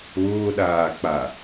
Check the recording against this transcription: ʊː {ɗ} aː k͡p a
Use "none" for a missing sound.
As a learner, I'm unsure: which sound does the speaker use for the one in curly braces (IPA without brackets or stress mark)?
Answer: ɗ